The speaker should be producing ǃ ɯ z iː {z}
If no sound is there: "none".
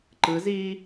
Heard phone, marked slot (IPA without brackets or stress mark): none